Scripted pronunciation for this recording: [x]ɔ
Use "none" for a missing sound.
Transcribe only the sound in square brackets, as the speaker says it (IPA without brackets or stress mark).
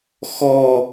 x